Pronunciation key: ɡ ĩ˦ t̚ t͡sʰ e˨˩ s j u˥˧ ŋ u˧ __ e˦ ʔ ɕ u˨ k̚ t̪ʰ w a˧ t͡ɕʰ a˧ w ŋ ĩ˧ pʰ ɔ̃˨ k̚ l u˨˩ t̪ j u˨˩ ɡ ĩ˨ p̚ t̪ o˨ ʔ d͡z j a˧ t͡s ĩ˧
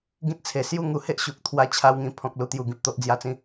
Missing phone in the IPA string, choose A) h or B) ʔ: A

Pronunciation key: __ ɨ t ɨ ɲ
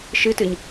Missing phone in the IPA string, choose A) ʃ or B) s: A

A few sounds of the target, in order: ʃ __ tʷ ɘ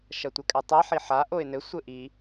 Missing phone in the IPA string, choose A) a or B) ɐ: B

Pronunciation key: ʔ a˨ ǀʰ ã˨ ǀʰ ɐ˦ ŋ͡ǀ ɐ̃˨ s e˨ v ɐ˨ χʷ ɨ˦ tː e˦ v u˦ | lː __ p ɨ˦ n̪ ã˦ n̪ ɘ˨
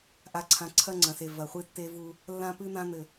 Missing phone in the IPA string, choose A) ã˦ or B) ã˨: A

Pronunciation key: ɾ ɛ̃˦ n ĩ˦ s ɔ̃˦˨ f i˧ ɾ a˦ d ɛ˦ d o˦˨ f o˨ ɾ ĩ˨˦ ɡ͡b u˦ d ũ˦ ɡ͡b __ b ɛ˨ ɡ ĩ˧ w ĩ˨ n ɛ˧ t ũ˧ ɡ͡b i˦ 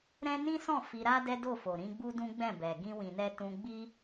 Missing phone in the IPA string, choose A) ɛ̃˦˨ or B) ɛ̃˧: A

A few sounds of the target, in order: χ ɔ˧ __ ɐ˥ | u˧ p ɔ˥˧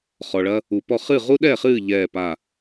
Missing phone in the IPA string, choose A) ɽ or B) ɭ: B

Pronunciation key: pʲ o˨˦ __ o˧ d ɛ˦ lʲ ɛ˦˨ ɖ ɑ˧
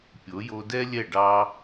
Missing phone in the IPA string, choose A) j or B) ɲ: A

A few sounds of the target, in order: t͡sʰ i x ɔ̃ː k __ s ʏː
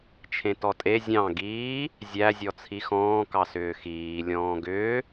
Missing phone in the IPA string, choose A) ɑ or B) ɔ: A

